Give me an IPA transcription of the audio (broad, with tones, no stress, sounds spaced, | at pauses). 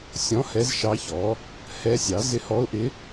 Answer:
sʲ ɔ̃˧˥ h ɛ˧˥ z ʃ ɑ˧˥ ç ɔ˩˥ | h ɛ˧˥ sʲ ɑ˩˥ z ɪ˧˥ h ɔ˧˥ ʊ̯ ʔ ɪ˧˥